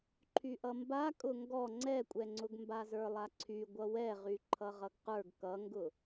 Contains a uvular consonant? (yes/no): yes